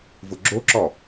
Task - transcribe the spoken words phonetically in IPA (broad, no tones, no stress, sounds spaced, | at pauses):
v ʊ ɡ͡ǁ o ǁ ɔ